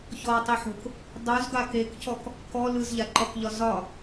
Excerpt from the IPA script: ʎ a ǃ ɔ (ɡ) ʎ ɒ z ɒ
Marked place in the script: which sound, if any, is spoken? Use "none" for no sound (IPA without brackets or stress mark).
k